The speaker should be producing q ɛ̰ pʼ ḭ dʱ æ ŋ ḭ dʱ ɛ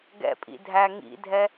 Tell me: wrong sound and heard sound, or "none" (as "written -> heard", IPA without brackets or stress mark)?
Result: q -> ɡ